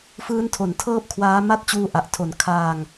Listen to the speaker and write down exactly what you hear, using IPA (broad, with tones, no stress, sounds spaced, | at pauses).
f ɯː˦˥ n tʰ o˨˩ n tʰ ɤː˦˥ p̚ kʰ w aː˦˥ m a˥˩ t̚ t͡ɕ uː˦˥ ʔ a˨˩ ʔ tʰ o˨˩ n kʰ aː˧ ŋ